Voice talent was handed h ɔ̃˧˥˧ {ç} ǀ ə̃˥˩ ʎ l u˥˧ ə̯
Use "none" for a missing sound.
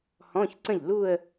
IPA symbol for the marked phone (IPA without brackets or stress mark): ç